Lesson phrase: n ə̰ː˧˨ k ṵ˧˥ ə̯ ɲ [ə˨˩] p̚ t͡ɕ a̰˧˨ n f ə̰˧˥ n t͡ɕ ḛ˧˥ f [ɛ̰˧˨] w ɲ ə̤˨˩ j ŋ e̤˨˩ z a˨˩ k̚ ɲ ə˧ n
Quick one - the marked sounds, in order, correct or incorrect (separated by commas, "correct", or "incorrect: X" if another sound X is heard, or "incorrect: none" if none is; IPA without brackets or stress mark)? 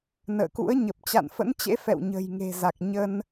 correct, correct